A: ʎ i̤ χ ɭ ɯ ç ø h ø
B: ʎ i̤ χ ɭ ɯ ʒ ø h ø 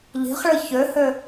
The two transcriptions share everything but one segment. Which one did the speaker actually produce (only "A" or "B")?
A